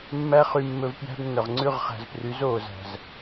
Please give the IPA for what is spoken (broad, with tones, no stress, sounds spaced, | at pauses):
mː æ˦ χ y˧ mː ɵ˧ v p j æ̤˦ b nː œ˨ ʁ ŋ͡ǀ ʉ˦˨ ʁ χ æ̤˨ z p r y˨˦ z oː˨ z æ̤˨ z